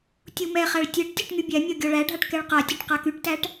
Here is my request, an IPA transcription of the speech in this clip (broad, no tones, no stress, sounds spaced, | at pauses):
tʲ u m ɛ χ æ ɭ tʲ ɛ ʈ tʲ ɒ ʈ ŋ y bʲ æ mʲ ɒ ɡʲ ɔ ɭ æ ɖʱ a ʈ k ɛ ɭ q a tʲ ɒ ʈ q a k y ʈ t æ ʈ